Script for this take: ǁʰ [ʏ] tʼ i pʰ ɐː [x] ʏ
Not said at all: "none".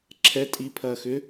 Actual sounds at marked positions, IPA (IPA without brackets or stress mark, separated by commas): ɛ, x